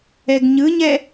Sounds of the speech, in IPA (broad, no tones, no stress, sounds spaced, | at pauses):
ɛ ɡ ɲ ɯ ɲ ɛ